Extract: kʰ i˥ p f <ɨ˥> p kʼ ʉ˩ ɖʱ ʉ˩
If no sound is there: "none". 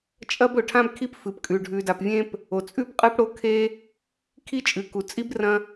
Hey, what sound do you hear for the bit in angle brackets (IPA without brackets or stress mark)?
ɨ˩